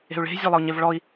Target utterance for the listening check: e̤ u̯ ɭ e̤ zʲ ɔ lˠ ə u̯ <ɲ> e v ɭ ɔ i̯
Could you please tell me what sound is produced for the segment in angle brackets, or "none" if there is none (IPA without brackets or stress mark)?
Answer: ɲ